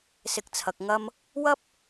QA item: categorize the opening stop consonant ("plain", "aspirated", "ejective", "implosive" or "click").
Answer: plain